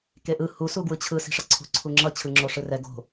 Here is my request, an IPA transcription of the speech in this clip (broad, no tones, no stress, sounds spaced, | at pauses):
k e ʔ ɯ h u s u ɡ w ɯ t͡ɕʰ ɯ s i̤ ʂ ʌ ǀʰ ṳ ǀʰ u ŋ͡ǁ ʌ t͡ɕʰ ɯ ŋ͡ǁ o ʂ ɯ r ɛ ɡ o̤